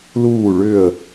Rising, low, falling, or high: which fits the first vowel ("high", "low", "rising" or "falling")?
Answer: falling